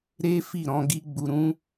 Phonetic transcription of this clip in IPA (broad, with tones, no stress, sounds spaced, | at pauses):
ɾ e˦ f i˦˨ ɾ ɔ̃˧ ɡ i˦ ɡ͡b u˧ ɾ ũ˦